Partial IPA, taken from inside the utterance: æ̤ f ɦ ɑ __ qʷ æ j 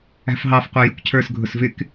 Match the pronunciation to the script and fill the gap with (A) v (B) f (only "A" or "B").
B